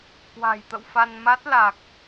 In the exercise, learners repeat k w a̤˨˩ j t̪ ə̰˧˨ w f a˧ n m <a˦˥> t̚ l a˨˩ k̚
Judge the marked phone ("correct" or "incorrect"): correct